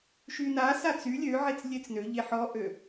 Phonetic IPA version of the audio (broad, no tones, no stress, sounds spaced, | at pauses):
ʃ y n a s a t͡s y lʲ ø ʕ e t͡s lʲ e t͡s n ø ʎ e ħ ɔ ʔ ø